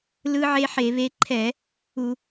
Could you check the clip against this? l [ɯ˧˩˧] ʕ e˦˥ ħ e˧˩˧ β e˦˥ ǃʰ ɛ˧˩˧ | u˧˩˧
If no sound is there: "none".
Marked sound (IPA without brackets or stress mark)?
ɯ˦˥